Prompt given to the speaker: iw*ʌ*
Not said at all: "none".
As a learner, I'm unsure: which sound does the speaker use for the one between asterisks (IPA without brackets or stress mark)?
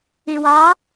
ɑ